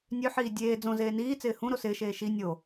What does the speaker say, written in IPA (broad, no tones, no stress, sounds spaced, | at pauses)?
nʲ ø ħ iː dʲ eː d͡z õ z eː n iː t͡s ɪː h ũ ɾ o s ɪː ʃ eː ʃ i nʲ o